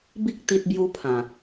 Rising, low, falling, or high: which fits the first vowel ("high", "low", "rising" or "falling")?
high